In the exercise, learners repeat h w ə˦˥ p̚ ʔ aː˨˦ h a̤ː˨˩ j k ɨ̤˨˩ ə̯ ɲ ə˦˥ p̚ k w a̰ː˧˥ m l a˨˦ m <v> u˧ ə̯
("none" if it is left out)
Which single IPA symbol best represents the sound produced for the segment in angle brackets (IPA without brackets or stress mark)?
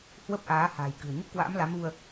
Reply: v